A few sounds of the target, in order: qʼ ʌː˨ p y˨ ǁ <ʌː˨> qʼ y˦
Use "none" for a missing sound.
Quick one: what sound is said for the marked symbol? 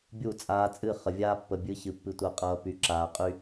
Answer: aː˨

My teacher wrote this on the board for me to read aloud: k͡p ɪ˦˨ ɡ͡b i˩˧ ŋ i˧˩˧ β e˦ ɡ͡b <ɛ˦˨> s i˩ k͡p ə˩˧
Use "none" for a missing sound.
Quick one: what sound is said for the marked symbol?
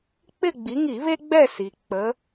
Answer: ɛ˦˨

